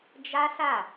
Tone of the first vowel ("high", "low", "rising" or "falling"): high